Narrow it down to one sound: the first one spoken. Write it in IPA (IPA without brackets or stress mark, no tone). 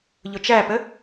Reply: ʎ